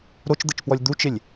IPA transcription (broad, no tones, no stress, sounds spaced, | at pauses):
ɾ o t͡ʃ d̪ ə t͡ʃ p w ɔ lʲ d̪ u t͡ʃ ɪ lʲ